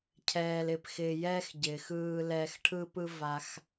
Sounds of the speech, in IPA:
cʰ ɛː˧ l ɪ˧ p x ɪː˧ j ɛː˦ x ɟ ɪː˨ x ɯː˧ l ɛː˧ x ʈʰ ɯ˦ p ɯ˦ v a˧ x

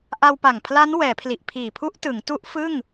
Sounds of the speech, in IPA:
ʔ a˧ w p a˨˩ ŋ pʰ l a˦˥ n w ɛː˩˦ pʰ l i˨˩ ʔ pʰ iː˨˩ pʰ u˦˥ ʔ t ɯ˩˦ ŋ t u˦˥ ʔ f ɯ˥˩ ŋ

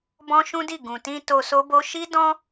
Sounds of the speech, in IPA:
b ɔ̃˦ ʃ ũ˦ d i˦˨ ɡ ũ˨ t ĩ˧ t o˧ s o˦ b o˦ ʃ i˦ d ɔ̃˦

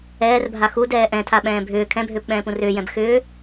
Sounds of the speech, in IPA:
ɛː r bʱ a x u d ɛː ʔ ɛ̃ tʰ a ɓ ɛ̃ː bʱ ʏː kʰ ɛ̃ bʱ ʏː p ɓ ɛ̃ː p ũ r ʏː j ɛ̃ b x ʏː

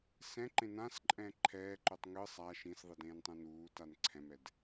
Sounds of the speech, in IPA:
s ɛ̃ ǃ ẽ n ã s ǃʼ ɛ̃ ǃʰ ɛː ǃ u tˤ ŋ ɯ sˤ a ʃ ĩ s ðˤ i d ẽː n tˤ ẽ n uː t a n ǀʰ ɛ̃ m ɛ d

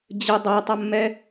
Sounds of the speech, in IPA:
d͡ʑ ə dˤ a tˤ ɐ mː ɛ

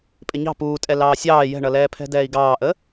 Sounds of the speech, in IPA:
pʼ ɪ ɲ ɑ̤ p uː tʼ ɛ l ɑː sʲ ɑː j ɛ̤ ɳ ʌ l ɛː pʰ ɛ̤ d ɛː i̯ ɡ ɑː ʔ ə

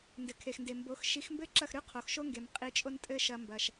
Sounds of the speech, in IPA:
n d ɘ˩ kʰ e˩ x n d e˩ m b o˩˥ x ʃ i˩˥ x m b ɘ˥ ǁ ɐ˥˩ x ɾ ʉ˥ qʰ o˩ x ʃ o˥ ŋ ɡ e˩ m qʼ i˧ t͡ʃʼ o˥ n tʼ ɘ˥ ʃ ɐ˧ m b ɐ˩ ʃ

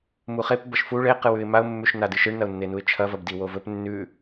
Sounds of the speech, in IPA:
m u χ e p b ɐ ʃ f u ɭ e q ɨ w ʉ ɪ̯ m a ʊ̯ mː ʉ ʃ n a d ɨ ʃ ɨ ɳ n ɐ ʊ̯ nː e n u ɪ̯ t͡ʃʰ ɐ v ɐ b d i w o v ɵ p nː ʉ

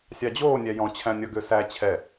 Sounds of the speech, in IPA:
sʲ ɑ d͡ʑ oː nʲ æ j ɔ̃ t͡ɕʰ æ̃ nʲ ɔ ɡ ø s æ t͡ɕʰ ɛ

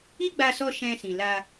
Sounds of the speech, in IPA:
i˦ ɡ͡b a˧ s ɔ˧ ʃ ɛ̃˧ s ĩ˨ l a˧

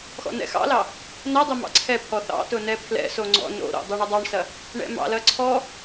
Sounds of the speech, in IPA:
x ɔ̰ n ɛ̰ x ɑ̰ l ɑ | n ɐ dˤ ɘ m ɑ̰ ǀʰ ɛ pʰ ɔ θ ɑ̰ t ʊ n ɛ pʰ l ɛ̰ s o ŋ͡ǀ ɔ̰ n o̰ ɾ o̰ dˤ o ɳ ʊ dˤ ɑ ɳ s ɐ | ɳ ɛ̰ m ɑ̰ l ɐ ǀʰ ɔ

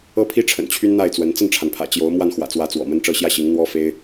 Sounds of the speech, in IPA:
ɤ˥ pʰ i˥ ʈ͡ʂʰ ə̰˨˩ n t͡ɕʰ y˥ n n̪ a˥˩ ɪ̯ t͡s w ə˧˥ n t͡s ə˥˩ n ʈ͡ʂʰ a˩ n pʰ ä̰˨˩ t͡ɕ j o˧˥ ʊ̯ m w a˥˩ n x w ä̰˨˩ t͡s w ä˧˥ t͡s w ɔ̰˨˩ m ə˥ n ʈ͡ʂ ɤ˥˧ ɕ j ä˥˩ ɕ i˧˥ ŋ n̪ w ɔ˥ f e˥ ɪ̯

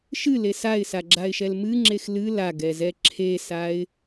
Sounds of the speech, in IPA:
ʃ ɨ l e s a ɪ̯ s a ɡ͡ǁ a ɪ̯ ʃ ɛ l m ɨ ŋ͡ǁ e x l ɨ l a ɡ ɛ z ɛ ǁʰ e s a ɪ̯

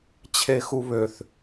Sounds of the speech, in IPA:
t͡ɕʰ e x u β ø θ

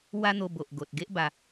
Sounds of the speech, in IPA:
w a˦ n̪ o˧ b o˨ ʔ ɡ o˨ t̚ ɡ e˦ ʔ b a˧

